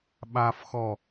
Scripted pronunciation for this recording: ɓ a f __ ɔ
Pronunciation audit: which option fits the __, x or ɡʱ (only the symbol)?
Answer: x